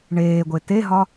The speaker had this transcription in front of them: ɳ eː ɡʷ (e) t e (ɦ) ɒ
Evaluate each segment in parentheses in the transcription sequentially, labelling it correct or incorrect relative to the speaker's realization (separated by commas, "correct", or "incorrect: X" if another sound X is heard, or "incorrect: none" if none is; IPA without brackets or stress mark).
correct, correct